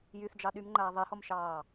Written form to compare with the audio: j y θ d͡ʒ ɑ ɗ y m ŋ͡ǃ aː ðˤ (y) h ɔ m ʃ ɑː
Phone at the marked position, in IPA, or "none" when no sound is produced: e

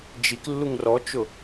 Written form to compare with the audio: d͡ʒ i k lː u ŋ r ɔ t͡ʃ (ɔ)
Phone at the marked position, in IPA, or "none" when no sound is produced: ʊ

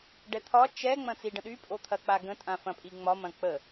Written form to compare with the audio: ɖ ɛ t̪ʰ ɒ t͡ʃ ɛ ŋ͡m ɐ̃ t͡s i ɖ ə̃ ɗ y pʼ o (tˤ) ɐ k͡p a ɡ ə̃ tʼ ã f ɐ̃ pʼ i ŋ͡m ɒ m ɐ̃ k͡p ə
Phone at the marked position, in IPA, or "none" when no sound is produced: t̪ʰ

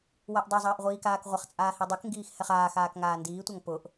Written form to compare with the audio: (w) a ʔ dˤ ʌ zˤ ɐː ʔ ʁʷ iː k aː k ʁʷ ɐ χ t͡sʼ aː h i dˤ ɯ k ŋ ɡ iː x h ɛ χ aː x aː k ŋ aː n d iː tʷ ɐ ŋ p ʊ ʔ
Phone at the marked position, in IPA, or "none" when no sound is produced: w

